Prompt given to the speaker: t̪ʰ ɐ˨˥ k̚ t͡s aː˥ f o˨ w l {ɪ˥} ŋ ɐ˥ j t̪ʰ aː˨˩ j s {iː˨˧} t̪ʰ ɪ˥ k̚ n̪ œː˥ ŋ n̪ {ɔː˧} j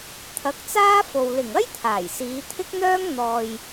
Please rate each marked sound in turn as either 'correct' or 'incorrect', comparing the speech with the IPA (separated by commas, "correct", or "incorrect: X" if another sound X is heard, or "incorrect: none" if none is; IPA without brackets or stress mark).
incorrect: ɪ˨˩, correct, incorrect: ɔː˨